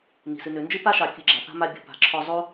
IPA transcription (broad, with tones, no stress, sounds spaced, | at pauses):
n i̤˩ s ɨ˨ n ø˨ n d͡ʒ ɨ˥ p a˥ ʃ ɑ˨ kʲ ɨ˨ ɡ͡ǁ a˩ θ a̤˥ m a˦ bʲ ɔ̤˨ p a̤˨ ǁʰ ɔ˦ zˤ o˥